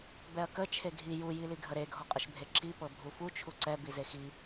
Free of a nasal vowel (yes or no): yes